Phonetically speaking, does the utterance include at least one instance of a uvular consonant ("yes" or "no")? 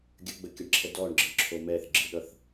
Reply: no